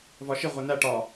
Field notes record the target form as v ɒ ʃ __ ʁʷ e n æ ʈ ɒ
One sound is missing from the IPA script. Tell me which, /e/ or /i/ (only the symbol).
i